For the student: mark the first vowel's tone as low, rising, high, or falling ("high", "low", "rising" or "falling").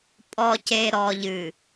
low